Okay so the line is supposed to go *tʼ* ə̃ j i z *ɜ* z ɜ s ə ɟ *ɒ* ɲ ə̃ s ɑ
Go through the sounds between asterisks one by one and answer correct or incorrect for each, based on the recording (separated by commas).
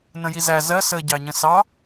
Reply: incorrect, incorrect, incorrect